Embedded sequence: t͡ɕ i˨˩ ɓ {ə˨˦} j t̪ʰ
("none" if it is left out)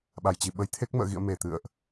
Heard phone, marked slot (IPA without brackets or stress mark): ə˨˦